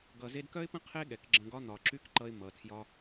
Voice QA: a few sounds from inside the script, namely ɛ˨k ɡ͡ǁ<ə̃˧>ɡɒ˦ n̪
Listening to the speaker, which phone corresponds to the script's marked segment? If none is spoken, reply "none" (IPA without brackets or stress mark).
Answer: ə̃˧